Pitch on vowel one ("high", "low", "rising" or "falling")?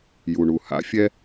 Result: low